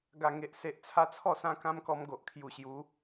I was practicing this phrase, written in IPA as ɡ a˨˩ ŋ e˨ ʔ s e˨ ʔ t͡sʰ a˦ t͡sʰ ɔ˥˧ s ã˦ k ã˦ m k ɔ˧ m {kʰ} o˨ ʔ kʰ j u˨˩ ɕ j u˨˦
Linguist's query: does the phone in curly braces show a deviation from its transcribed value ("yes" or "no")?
yes